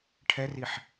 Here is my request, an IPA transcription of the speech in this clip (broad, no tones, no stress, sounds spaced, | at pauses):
ʈʰ ɛ r i ħ